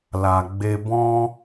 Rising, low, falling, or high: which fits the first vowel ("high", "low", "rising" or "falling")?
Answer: low